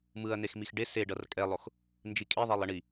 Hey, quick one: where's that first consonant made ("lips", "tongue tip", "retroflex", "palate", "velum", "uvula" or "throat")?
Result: lips